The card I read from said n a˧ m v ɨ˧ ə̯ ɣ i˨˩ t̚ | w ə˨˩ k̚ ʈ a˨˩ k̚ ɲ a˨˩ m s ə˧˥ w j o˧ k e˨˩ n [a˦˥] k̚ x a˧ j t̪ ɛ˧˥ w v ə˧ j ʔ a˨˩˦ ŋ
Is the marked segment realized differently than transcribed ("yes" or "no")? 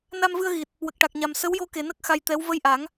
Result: yes